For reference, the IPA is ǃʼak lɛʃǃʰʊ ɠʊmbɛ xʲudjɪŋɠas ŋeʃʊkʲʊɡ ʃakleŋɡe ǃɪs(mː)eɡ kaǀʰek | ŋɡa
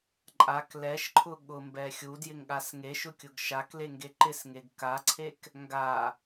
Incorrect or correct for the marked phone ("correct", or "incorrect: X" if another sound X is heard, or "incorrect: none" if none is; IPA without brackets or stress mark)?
incorrect: ŋ